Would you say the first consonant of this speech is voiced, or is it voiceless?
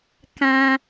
voiceless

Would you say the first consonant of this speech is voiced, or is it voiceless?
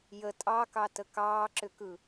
voiced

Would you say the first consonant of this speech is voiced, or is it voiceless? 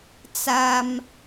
voiceless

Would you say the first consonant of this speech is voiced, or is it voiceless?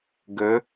voiced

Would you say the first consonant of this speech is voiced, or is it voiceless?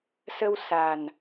voiceless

